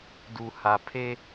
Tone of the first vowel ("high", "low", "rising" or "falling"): low